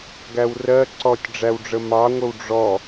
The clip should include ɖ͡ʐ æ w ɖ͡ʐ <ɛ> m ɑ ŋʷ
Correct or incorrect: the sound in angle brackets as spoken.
incorrect: ə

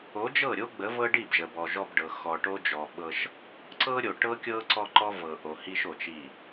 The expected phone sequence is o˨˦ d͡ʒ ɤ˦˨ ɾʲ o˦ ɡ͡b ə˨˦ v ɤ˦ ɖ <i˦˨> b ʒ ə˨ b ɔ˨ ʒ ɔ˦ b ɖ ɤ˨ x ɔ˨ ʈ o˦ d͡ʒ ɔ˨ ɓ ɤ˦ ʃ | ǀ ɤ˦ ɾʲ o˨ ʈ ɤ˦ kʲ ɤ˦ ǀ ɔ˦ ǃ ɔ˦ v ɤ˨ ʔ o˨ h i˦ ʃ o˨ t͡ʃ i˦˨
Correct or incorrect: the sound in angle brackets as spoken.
correct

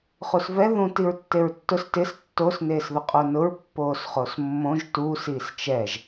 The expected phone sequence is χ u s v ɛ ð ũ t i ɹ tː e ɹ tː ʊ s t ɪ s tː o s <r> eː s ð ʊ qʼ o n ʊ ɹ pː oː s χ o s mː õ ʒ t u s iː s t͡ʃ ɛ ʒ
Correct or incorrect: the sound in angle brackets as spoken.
incorrect: n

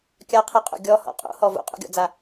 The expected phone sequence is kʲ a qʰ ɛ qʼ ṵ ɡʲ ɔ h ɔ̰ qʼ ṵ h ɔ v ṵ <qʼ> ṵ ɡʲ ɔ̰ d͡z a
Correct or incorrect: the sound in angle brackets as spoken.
correct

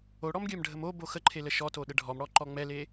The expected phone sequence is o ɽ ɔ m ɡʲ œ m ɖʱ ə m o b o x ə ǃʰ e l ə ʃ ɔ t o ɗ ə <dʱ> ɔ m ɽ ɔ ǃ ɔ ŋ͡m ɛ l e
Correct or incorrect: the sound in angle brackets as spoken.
incorrect: ɖʱ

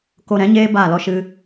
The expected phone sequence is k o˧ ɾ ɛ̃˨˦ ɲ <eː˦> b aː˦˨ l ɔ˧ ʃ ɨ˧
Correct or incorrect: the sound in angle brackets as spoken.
correct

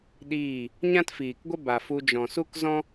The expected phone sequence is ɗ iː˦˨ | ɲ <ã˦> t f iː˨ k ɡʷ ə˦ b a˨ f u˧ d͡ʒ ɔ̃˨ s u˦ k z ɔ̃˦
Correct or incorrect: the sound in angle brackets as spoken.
correct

